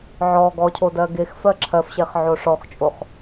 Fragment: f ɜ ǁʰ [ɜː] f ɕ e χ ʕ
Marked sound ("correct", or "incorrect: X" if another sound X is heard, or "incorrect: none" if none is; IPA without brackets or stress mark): incorrect: ɜ